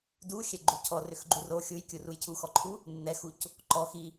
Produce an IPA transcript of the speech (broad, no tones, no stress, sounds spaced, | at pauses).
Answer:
d u xʲ ɛ ɡ͡ǃ u cʰ ɔ r ʏ x ɡ͡ǃ u r o xʲ u j kʲ u r u j cʰ u x ɔ ǃʰ u | nː ɛ x u c | ǃ ɔ x i